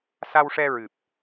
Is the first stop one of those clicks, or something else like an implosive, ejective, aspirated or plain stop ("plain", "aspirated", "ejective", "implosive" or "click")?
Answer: plain